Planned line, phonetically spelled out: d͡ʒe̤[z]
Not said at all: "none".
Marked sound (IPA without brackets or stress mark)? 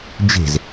z